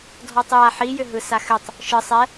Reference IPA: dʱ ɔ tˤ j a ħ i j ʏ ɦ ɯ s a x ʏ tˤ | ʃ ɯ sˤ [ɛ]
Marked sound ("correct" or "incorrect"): correct